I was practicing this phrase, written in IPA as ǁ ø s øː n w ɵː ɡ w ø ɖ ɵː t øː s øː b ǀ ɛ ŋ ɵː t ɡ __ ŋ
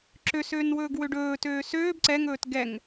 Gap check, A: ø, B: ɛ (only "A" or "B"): B